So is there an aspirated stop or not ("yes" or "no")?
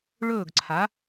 yes